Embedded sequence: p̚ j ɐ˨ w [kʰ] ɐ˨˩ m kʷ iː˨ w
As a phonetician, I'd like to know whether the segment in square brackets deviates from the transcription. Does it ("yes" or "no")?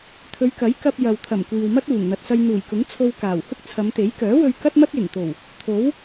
yes